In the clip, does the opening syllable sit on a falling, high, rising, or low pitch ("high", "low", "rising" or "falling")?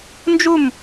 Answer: falling